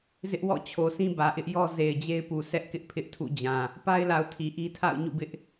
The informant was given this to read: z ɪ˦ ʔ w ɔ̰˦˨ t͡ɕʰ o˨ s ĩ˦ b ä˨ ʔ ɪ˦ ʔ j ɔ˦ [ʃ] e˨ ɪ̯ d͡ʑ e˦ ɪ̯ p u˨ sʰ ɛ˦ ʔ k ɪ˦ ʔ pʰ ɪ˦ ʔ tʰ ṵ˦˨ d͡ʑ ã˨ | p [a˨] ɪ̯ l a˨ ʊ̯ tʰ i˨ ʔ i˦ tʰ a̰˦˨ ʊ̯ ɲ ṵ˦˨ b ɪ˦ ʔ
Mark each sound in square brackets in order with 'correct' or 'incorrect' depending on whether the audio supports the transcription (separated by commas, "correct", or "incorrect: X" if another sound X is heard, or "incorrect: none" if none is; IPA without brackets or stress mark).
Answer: incorrect: z, incorrect: a˦